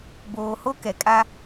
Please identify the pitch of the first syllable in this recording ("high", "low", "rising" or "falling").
low